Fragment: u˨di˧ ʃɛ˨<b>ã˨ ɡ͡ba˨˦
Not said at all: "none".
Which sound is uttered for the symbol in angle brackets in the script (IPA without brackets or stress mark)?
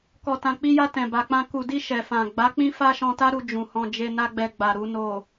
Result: f